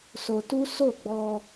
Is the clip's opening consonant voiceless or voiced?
voiceless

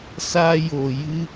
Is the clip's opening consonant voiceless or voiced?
voiceless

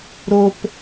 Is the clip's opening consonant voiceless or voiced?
voiced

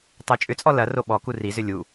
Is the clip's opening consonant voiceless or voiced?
voiceless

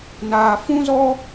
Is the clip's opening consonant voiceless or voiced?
voiced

